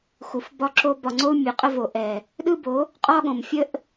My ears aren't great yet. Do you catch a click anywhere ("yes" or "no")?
yes